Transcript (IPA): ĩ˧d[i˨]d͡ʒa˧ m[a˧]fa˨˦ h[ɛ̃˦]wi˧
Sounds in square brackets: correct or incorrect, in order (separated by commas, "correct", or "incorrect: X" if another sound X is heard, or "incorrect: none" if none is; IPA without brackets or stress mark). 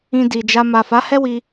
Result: correct, incorrect: a˨, incorrect: ɛ˦